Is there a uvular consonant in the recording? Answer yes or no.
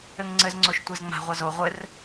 yes